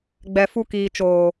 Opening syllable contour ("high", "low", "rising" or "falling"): low